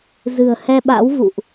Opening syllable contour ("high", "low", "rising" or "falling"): low